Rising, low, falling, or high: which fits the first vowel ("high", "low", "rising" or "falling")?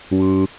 low